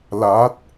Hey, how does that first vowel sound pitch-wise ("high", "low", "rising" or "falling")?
rising